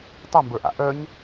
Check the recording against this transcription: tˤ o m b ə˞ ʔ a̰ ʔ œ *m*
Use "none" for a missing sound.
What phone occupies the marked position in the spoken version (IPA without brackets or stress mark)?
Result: ɲ